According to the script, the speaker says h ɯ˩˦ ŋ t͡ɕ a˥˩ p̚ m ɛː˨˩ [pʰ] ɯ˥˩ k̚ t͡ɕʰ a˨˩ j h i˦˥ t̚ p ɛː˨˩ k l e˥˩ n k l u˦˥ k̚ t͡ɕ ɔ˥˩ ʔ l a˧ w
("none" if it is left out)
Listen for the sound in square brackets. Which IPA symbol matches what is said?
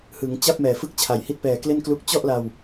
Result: f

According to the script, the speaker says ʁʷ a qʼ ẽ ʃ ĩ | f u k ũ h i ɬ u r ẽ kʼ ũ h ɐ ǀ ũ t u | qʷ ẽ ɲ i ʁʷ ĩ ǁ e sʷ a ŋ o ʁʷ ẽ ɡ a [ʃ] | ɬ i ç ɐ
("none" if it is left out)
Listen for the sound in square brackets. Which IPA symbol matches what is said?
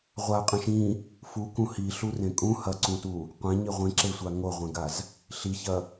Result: z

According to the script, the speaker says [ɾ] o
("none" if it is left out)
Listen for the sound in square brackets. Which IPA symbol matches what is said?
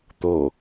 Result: t̪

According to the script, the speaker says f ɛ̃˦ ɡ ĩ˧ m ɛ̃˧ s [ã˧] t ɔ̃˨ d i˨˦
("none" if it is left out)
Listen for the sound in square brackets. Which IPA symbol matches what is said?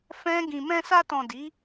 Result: a˧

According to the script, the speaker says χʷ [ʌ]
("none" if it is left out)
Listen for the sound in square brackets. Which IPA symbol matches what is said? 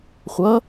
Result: ʌ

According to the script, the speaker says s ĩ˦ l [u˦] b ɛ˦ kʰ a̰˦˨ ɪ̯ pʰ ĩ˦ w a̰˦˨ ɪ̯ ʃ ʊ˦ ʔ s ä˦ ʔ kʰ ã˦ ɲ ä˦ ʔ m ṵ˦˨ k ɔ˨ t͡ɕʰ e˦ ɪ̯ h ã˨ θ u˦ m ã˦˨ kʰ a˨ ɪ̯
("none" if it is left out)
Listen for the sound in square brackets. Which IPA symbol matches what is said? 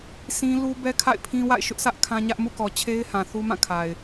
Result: u˦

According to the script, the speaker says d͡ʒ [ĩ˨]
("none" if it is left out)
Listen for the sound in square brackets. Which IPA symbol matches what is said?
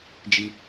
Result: i˨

